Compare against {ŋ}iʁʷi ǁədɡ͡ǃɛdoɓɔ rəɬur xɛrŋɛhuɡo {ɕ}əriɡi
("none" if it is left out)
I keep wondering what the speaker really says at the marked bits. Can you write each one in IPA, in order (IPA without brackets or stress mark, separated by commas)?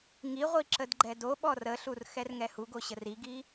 ŋ, ɕ